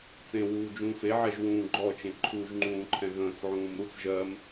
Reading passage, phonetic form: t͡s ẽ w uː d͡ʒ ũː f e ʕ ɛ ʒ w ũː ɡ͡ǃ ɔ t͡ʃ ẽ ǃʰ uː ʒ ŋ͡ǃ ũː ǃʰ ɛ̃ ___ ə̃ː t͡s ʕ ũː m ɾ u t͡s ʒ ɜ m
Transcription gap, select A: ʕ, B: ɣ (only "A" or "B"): B